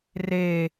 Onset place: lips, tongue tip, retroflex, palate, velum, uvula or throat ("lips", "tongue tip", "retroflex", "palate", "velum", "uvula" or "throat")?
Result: tongue tip